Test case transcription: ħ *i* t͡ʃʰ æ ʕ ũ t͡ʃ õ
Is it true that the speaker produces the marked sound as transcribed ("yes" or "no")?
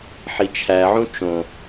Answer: yes